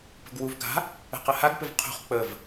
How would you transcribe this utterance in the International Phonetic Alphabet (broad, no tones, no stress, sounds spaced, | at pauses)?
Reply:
p ə̤ ɡ w u v ɡ a̤ | ə̤ q ə h a ɡ p ɪ v qʰ ṳ χ k͡p ə v